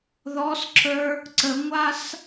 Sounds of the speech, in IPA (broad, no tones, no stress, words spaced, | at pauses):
ðɔsǁə˞ | ǀəŋʷas